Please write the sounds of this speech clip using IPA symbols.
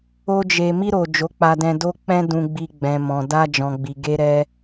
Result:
o˦ d͡ʒ e˧ m i˧ ɾ o˨ d͡ʒ o˨˦ k͡p a˧ d ɛ̃˧ d o˧ k͡p ɛ̃˧ d ũ˨ ɡ͡b i˨ ɡ͡b ɛ̃˨ m ɔ̃˨ d a˧ d͡ʒ ɔ̃˨ ɡ͡b i˨ ɡ e˧ ɾ ɛ˧

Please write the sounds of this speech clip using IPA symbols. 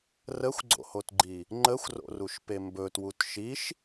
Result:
r ə xʷ ɡ͡ǀ o̰ h o t ɡ͡ǃ i | ŋ͡ǃ ə xʷ r o̰ r u ʃ p e m b ɵ t w u t ʃ i ʃ

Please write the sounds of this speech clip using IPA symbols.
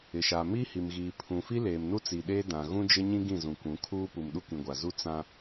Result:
ɪ˨ ʃ a˨ m iː˦ h i˨ m ɣ iː˨ pʰ ũ˨ f i˦ l eː˨ m n u˦ t͡s i˨ ɗ eː˦ d ã˨ ɣ ũ˦ d͡ʒ ɪ˦ ɲ ĩ˦ ɡ ĩ˦˨ z ũ˨ kʷ ũ˨˦ kʰ uː˦ p u˨ m ɗ u˦ k ĩ˨ ɡʷ a˨ z u˦ t͡s ã˦

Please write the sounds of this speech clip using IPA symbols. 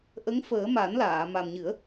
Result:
ʔ ə˧˥ ŋ f əː˨˩˦ m a˨˩˦ n l aː˨˩˨ m a˨˩ m ɲ ɨ˨˩˦ ə̯

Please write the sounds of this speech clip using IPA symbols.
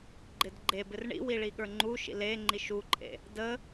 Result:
ɡ͡ǃ ɪ d ɡ͡ǃ e b ɪ r ɳ ḭ w i ɭ i ɠ ə˞ ŋ͡ǃ u ʃ ḭ l e ŋ͡ǃ i ʃ u ǃʼ ḛ | d ə

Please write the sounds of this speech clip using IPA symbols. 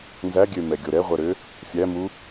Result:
n z æ ɡʲ ø m ɛ ɡʲ o ɾ ɛ ʁʷ ɜ ɾ ø | fʲ æ m u

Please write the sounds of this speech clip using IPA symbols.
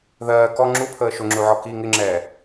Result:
ð ɜː k ɔ ŋ͡ǁ u pʰ əː ʃ ʊ ŋ͡ǁ u ʕ ɔ k i ŋ ɪ ŋ͡ǁ ɛː

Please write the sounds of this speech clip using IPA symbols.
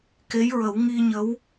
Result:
k e˧˥ j ɹ ə˨˩˦ w ŋ i˧ ɲ ə˧˥ w

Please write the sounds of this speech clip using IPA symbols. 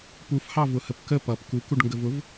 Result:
p u f h ɑ v ʊ h ə p k ə p ʌ p k u k u ɖ ŋ ɡ ə v ʊ v

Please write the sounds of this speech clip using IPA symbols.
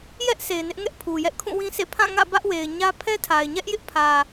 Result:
j ɛ˦ ʔ s e˨ ɪ̯ n ɪ˦ ʔ ŋ ɛ˦ ʔ pʰ u˨ j ɛ˦ ʔ kʰ ũ˦˨ w ĩ˦ s ḛ˦˨ pʰ ã˦˨ ŋ ä̰˦˨ b ä˦ ʔ w e˨ ɪ̯ ɲ ä˦ pʰ ɛ˦ tʰ a˨ ɪ̯ ɲ ɛ˦ ʔ j ɪ˦ ʔ pʰ ä˨

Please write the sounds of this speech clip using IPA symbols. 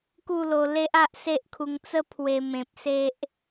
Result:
k u˥˧ l o˧ l e˦ ʔ a˦ ʔ s e˦ ʔ kʰ u˧ ŋ t͡s ə˦ pʰ w e˧ m ẽ˨ p̚ s e˦ ʔ

